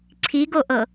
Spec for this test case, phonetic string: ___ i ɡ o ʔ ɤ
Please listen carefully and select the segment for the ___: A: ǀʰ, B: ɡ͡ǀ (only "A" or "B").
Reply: A